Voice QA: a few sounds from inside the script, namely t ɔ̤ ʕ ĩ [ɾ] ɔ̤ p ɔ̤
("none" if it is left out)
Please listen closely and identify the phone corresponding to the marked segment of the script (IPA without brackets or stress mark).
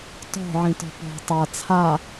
t